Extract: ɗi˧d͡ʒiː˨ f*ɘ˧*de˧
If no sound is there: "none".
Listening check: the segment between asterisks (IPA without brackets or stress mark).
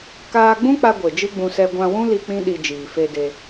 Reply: e˧